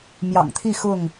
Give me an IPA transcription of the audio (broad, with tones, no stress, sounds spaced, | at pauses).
m j ɑ̰˨˩ ŋ t̪ʰ i˥˨ x ʊ˥˨ ŋ